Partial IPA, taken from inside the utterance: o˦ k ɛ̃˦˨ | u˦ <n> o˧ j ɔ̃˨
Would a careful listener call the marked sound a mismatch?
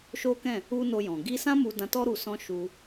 no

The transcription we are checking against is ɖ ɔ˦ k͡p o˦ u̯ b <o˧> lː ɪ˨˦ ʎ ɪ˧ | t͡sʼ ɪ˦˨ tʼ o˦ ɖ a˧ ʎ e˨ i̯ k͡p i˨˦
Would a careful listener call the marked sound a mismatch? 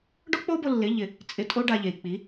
no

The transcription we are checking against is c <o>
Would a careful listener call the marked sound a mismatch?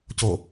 no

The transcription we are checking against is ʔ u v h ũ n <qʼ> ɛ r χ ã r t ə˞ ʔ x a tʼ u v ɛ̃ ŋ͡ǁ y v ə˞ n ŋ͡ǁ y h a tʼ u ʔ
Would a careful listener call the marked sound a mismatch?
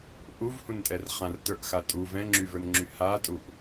yes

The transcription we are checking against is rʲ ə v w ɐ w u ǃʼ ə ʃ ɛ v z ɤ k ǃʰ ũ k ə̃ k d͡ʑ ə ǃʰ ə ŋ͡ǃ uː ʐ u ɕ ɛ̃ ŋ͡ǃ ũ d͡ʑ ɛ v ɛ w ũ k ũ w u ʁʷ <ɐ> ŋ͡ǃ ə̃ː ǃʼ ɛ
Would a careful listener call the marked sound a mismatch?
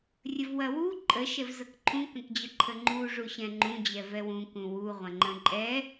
yes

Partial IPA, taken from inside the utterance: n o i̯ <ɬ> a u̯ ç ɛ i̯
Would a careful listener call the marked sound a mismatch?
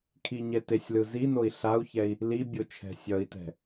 no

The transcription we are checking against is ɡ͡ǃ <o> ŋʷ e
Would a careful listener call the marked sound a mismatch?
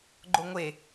no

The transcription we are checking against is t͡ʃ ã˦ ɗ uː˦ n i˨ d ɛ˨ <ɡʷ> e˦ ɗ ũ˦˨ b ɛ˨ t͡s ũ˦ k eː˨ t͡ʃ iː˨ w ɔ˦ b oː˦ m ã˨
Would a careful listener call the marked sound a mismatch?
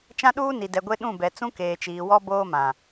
no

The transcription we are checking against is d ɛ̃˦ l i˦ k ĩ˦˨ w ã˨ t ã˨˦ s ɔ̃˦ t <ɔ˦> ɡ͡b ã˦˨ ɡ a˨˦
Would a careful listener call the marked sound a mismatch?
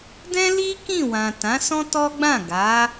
no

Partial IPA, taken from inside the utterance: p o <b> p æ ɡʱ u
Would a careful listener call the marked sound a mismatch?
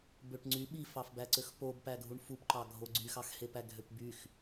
no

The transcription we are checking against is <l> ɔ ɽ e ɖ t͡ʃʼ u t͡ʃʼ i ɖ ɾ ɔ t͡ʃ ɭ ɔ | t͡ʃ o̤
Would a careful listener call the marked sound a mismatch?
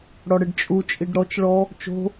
yes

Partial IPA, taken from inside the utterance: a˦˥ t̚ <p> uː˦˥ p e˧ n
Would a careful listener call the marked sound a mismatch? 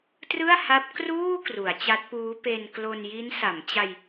no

